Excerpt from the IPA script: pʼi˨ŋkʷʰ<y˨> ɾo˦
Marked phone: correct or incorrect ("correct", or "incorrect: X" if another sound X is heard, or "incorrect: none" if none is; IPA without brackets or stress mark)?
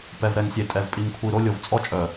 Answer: incorrect: i˨